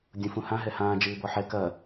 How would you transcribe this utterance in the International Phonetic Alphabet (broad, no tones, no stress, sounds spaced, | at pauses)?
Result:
dʲ ũ f ũ h ã ɦ ɛ h ãː d͡ʒ ɨː b ɔ ħ ɛ k ɐ